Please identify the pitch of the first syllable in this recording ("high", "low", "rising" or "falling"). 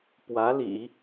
rising